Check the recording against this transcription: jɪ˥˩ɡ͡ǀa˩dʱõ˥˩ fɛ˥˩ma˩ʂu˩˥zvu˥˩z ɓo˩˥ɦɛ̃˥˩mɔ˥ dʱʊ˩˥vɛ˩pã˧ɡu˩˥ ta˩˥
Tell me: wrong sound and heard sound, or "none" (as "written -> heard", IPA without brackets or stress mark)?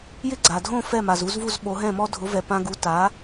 ʂ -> z